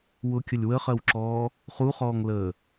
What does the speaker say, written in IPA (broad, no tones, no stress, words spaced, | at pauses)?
wʊkʲəlʲ wəχɜwǁɔː | χuχɔːŋləː